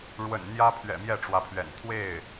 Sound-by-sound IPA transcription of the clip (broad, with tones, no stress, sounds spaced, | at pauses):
ɻ w ə̰˨˩ n n̪ j ä˥ pʰ ɥ ɛ̰˨˩ m j ɛ˥˩ ʈ͡ʂ w ä˧˥ pʰ ɥ ɛ̰˨˩ n t̪ʰ w e˥˩ ɪ̯